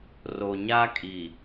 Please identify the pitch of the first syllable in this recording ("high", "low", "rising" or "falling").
low